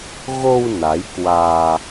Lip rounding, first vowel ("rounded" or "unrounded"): rounded